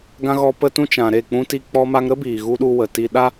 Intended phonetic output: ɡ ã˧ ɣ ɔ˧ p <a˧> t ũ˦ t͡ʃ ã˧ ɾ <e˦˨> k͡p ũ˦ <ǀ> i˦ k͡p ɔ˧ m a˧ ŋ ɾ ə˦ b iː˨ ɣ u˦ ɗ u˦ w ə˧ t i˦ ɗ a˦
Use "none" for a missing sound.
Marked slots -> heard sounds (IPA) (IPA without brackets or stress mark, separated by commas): ə˧, e˦˨, t